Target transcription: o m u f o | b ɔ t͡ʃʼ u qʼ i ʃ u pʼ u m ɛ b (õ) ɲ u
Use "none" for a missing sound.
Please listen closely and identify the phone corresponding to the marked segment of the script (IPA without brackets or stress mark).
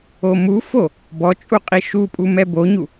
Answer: o